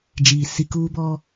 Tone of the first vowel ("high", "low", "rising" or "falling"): low